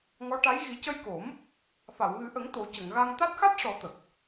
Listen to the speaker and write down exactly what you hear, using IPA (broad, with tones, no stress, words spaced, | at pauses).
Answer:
ŋɔ˧˥ ʈa˧˥j ɣi˨˩˦cə˧jko˨˩˦m | fa˨˩˨wɣɨ˨˩˦ʔə˨˩˦ŋ t̪o˨˩˦cə˨˩˨ŋɣa˧ŋ t̪a˦˥t̚ xa˦˥t̚ʂɔ˨˩˦ t̪ə˨˩k̚